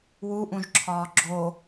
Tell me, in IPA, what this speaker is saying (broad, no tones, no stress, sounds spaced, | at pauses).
w u ʔ ũ ʒ ǁʰ ɒː ɡ͡ǁ o